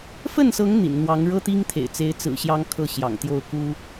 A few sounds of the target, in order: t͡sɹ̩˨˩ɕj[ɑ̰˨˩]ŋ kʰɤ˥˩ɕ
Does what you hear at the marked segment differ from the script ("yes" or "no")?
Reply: yes